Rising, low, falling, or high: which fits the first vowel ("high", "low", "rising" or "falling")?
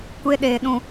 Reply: high